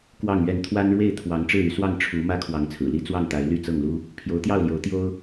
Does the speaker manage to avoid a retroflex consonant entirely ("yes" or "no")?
no